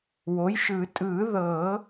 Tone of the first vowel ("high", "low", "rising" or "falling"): rising